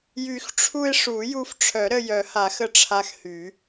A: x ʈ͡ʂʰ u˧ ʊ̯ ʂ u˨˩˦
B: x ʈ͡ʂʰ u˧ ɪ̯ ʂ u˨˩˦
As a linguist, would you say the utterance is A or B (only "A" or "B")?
B